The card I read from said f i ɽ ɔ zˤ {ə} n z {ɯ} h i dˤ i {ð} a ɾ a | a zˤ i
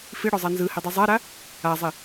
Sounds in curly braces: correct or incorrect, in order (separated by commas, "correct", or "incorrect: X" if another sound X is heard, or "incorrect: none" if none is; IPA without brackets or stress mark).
incorrect: a, correct, incorrect: zˤ